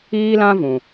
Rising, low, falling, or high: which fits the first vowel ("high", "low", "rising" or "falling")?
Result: high